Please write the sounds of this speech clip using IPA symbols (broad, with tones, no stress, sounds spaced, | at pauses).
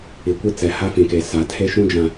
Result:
i˨ kʷ i˦ t͡s ɛ˨ h a˦ f ĩ˨ k e˨ s a˨ tʰ e˦ ʃ ũ˦ d͡ʒ ã˨